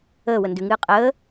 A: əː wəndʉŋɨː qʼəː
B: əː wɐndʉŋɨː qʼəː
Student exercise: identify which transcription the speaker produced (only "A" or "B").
A